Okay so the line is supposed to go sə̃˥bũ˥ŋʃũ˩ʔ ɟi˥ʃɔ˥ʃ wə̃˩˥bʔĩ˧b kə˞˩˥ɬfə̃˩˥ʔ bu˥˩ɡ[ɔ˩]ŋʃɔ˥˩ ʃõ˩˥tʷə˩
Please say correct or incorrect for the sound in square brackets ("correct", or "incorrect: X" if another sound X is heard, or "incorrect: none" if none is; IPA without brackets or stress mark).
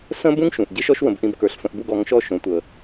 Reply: incorrect: ɔ˩˥